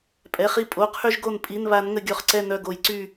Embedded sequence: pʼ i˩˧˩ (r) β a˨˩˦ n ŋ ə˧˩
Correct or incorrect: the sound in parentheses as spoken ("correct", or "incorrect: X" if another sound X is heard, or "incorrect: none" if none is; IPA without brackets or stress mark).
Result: incorrect: n